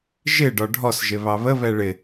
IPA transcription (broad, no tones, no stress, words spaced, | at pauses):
ʒɪ ɖɒɖʱɔsʒɪ βɑβə βɛɭɪ